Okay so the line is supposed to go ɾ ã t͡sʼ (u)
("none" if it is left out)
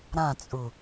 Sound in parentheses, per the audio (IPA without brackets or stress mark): u